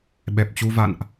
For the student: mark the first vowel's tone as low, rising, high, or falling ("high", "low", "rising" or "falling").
low